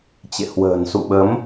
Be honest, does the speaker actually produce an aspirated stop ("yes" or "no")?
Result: no